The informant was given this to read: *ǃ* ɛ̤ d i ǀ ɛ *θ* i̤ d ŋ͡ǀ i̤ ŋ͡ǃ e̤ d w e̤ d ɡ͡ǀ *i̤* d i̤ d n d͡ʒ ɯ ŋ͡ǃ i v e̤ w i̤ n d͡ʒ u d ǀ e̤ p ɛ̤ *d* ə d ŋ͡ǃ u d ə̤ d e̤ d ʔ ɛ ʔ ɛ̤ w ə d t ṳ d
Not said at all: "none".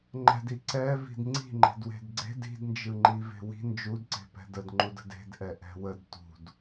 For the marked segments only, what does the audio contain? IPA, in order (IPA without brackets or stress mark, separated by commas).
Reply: ŋ͡ǃ, v, e̤, d